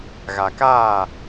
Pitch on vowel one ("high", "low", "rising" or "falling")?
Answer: low